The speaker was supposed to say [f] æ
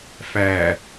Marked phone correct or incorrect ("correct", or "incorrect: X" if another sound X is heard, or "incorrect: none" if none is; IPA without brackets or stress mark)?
correct